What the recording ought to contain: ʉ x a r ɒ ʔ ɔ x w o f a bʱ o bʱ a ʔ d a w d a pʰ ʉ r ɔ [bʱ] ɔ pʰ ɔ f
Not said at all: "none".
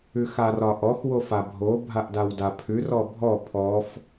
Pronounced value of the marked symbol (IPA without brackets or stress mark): bʱ